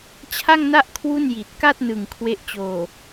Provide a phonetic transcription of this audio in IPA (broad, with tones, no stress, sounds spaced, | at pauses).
t͡ɕʰ a˥˩ ŋ n a˥˩ ʔ kʰ w u˥˩ n j i˨˩ t̚ k a˥˩ t̚ n ɯ˨˩ ŋ kʰ w e˦˥ ʔ t͡ɕ oː˨˩